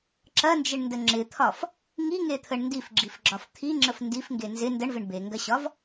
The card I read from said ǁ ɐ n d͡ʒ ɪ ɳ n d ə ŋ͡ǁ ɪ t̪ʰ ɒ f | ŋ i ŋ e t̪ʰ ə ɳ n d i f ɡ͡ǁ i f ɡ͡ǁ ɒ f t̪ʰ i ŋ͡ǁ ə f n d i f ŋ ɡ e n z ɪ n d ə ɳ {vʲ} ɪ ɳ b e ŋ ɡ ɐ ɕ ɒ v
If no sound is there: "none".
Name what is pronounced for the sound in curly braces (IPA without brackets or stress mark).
v